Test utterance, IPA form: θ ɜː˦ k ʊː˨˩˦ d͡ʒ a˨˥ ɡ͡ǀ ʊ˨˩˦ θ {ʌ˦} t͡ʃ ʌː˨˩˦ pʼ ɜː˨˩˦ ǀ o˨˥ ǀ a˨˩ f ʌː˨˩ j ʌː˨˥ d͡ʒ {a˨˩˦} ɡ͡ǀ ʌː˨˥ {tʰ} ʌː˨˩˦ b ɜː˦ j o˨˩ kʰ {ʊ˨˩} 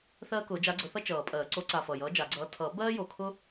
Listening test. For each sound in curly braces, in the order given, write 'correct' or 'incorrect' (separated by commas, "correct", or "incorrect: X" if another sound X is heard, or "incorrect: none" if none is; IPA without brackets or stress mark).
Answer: correct, correct, correct, incorrect: ʊ˦